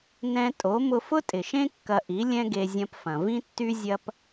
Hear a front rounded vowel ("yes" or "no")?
yes